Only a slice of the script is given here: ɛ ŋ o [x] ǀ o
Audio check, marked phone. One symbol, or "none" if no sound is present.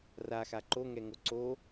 none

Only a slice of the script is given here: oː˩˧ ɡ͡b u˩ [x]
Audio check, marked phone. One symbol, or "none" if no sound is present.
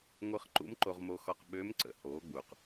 q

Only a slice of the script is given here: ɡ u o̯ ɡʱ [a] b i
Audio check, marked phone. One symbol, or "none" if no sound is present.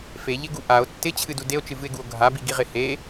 a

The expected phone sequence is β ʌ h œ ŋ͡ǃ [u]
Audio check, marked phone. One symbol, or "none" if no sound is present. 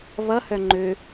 ø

